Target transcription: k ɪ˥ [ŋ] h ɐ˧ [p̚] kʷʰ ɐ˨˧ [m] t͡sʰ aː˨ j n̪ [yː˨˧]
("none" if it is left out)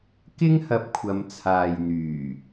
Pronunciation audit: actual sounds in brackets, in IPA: ŋ, p̚, m, yː˨˩

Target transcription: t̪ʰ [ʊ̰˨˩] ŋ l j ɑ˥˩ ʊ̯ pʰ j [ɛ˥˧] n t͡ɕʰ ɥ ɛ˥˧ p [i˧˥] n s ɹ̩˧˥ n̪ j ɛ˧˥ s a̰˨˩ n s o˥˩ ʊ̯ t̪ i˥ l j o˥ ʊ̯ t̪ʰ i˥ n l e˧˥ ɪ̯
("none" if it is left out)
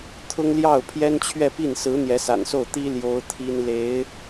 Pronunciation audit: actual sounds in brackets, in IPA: ʊ˥, ɛ˥, i˥˩

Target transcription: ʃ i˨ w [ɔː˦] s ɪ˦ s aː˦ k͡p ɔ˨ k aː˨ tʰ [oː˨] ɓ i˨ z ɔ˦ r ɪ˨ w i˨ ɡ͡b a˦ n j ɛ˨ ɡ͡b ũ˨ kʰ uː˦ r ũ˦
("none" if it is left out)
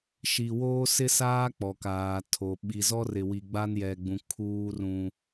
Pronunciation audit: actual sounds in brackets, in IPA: oː˦, o˨

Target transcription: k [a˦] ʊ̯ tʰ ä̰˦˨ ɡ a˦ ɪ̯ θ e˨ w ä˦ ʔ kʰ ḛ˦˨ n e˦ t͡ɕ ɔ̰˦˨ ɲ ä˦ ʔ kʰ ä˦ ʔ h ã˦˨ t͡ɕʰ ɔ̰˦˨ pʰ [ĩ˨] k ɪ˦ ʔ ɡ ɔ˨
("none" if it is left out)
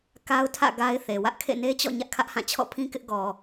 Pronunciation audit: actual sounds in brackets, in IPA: a˦, ĩ˦

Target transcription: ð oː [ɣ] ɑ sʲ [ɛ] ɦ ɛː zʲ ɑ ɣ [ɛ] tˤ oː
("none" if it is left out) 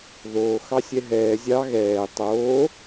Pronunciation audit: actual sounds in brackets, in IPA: x, ɛ, ɛː

